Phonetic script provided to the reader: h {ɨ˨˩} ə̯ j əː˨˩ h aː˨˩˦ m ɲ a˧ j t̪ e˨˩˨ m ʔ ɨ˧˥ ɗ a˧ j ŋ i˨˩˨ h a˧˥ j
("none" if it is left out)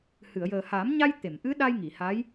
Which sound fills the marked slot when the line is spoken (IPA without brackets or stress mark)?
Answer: ɨ˨˩˨